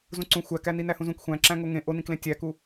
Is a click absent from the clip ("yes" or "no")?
no